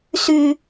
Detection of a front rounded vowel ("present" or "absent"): present